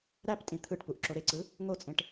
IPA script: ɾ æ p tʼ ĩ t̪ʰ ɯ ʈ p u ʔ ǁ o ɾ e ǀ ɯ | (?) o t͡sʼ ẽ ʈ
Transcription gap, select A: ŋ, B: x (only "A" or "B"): A